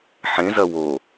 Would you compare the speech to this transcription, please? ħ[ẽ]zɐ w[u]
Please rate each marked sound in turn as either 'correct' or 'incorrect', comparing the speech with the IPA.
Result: correct, incorrect: o

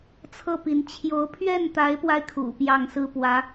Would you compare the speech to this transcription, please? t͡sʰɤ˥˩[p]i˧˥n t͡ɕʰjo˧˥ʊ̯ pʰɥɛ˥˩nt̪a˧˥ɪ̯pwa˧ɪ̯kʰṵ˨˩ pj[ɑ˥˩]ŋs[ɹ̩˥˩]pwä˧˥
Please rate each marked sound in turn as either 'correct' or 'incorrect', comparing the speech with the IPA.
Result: correct, correct, incorrect: ɹ̩˥

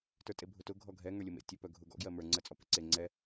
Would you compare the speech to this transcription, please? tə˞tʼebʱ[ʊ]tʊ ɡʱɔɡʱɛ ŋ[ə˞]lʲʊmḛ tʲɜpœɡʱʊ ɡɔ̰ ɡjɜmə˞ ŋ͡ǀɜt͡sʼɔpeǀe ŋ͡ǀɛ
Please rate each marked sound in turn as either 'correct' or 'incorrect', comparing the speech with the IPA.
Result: correct, correct

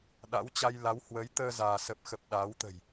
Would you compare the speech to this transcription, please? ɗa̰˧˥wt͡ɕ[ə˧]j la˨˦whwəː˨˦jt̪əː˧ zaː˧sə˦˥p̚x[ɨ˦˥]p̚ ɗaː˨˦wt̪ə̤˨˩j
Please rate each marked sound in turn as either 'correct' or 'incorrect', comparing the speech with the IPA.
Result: incorrect: a˧, incorrect: ə˦˥

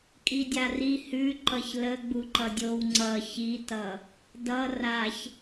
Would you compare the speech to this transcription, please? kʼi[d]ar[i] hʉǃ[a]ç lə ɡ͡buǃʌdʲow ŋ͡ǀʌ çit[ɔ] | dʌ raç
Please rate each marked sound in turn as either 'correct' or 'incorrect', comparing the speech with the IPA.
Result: incorrect: dʲ, correct, incorrect: ʌ, incorrect: ʌ

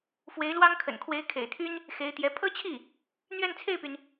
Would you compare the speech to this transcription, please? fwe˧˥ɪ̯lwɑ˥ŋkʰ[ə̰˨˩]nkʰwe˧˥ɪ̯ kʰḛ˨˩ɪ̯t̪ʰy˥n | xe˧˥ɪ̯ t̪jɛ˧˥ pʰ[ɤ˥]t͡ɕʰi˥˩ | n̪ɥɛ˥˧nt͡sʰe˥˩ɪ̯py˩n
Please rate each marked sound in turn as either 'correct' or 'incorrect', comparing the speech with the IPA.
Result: correct, correct

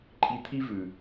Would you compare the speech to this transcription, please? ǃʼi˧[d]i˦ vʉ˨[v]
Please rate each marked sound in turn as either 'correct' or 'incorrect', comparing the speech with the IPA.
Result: incorrect: t̪ʰ, incorrect: none

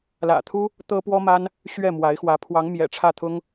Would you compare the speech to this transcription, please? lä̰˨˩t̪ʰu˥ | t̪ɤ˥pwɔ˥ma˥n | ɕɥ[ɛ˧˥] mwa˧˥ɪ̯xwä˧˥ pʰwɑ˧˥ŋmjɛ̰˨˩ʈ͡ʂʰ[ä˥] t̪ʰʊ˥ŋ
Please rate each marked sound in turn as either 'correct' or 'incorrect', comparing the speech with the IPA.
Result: incorrect: ɛ˥˩, incorrect: ä˥˩

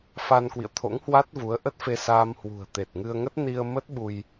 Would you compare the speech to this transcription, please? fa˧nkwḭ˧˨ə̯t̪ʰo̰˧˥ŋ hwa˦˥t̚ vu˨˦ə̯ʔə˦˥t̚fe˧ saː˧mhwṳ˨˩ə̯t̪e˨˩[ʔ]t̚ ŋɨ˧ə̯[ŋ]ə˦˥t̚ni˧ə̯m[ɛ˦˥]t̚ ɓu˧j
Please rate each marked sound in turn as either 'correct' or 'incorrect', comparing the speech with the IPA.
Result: incorrect: none, correct, incorrect: ə˦˥

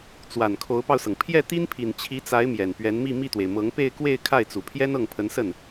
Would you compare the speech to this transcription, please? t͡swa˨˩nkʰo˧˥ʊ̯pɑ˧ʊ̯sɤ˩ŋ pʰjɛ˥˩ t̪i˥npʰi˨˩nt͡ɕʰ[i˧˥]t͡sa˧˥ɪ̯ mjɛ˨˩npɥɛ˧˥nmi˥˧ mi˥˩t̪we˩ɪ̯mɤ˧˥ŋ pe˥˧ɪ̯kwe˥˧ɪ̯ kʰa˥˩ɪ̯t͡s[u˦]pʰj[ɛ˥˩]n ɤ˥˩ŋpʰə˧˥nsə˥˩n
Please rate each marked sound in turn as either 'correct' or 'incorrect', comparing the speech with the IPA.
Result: correct, incorrect: u˨˩, incorrect: ɛ˥

